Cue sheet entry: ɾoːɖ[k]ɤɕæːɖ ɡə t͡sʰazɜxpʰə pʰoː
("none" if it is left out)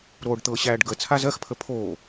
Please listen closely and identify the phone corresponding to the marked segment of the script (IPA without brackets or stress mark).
t̪